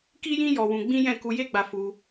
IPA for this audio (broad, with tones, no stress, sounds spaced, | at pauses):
k i˦ j ĩ˦ j ɔ˧ w ũ˧ ɡ͡b ĩ˦ j ɛ̃˦˨ k u˧ j e˦ ɡ͡b a˧ f u˧